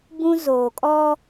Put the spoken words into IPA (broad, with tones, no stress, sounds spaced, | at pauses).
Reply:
b ũ˦ z oː˨ kʼ ɔ˦